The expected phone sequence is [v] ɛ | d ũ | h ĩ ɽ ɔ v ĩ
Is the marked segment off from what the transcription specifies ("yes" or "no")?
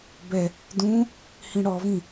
yes